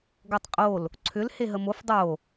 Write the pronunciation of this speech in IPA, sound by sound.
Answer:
ɡ o tˤ qʼ o l | ǀʰ ʏ l h e ɦ ə m o f dˤ o

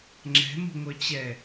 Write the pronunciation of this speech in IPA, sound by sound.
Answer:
ŋ͡ǁ ɛ̤ m ṳ ŋʷ œ t͡ɕ ɛ

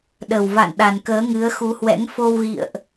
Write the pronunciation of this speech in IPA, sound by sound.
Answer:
ɗ ə˨˩ w v a̰˧˨ n ɗ a˨˩ n k əː˨˦ ŋ ɨ˨˦ ə̯ x u˨˦ h w ɛ̰˧˥ ŋ f o˧ w ɣ ḭ˧˨ ə̯ ʔ

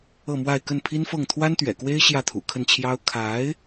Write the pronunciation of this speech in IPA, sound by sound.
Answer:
ɤ˥˧ m w a˥˧ ɪ̯ k ə˥˩ n pʰ i˥ n f ɤ˥˩ ŋ t̪ʰ w a˥ n t̪ ɥ ɛ̰˨˩ k w e˥ ɪ̯ ɕ j ä˥˩ t̪ʰ ṵ˨˩ kʰ ə˥˩ n t͡ɕʰ j ɑ˥ ʊ̯ kʰ a˧˥ ɪ̯

